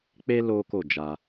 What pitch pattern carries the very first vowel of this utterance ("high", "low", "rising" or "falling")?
high